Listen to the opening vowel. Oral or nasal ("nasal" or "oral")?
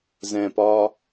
nasal